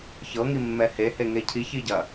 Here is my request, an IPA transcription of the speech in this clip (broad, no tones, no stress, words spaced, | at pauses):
çɤ ŋimːɛhe heŋecʰi çiɟɐ